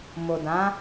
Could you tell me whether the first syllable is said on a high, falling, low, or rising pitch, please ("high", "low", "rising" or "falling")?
low